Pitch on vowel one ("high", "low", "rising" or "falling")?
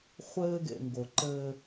high